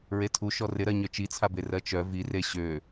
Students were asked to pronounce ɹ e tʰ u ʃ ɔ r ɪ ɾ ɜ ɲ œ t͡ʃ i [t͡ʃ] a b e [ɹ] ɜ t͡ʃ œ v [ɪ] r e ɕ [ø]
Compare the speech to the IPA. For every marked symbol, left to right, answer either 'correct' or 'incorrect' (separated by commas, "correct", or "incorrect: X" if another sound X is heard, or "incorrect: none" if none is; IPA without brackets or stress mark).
incorrect: t͡sʰ, incorrect: r, incorrect: i, correct